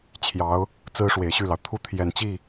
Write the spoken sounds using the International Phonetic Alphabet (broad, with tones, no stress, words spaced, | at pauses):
t͡ɕʰjɑ˧˥ʊ̯ | t͡sɹ̩˥ʂwe˨˩ɪ̯ɕy˥˩lɑ˩ʊ̯ t̪ʰu˥t̪ʰjɛ˨˩nt͡ɕi˥˩